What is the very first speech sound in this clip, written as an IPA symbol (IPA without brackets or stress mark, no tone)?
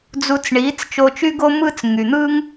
d͡z